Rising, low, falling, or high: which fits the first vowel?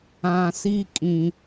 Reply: low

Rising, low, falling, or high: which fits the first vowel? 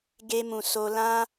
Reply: high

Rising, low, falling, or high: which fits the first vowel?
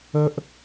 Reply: high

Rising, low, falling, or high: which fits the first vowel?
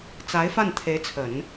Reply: rising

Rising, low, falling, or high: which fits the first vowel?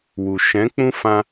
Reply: low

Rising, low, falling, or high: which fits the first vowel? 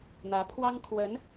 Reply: rising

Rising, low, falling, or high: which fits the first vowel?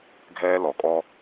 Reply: high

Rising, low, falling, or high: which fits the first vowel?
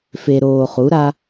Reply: low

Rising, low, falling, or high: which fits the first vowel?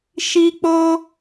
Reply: high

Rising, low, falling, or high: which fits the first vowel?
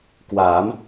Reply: rising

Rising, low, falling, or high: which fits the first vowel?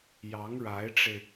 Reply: rising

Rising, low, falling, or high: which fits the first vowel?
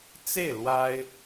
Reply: falling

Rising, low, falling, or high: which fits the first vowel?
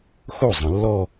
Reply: falling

